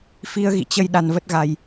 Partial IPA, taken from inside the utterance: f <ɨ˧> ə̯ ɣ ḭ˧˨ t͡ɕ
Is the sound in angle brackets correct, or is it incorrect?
incorrect